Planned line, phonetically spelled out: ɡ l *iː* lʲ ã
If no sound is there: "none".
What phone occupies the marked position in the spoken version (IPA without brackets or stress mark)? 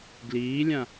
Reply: iː